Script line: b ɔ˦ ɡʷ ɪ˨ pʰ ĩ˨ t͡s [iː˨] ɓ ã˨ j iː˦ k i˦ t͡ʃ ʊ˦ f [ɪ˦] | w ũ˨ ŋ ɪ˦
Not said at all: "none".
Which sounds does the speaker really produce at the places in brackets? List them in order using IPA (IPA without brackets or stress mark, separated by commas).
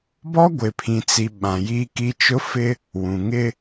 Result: i˨, ɪ˦